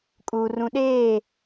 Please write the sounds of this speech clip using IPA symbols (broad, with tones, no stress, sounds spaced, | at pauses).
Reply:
kʼ uː˨ r ũ˨ ɗ eː˦˨